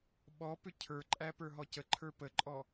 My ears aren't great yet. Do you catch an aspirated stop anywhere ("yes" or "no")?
yes